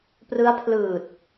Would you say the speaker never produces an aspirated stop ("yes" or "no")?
no